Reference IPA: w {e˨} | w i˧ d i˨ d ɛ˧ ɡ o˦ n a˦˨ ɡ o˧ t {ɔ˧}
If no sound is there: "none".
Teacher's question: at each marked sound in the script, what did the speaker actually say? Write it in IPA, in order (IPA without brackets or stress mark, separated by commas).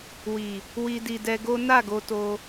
i˨, o˧